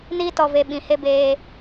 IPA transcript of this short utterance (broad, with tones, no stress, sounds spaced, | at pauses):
n iː˦ t ɔ˧ v e˧ ɓ ĩ˨ h e˦ b eː˧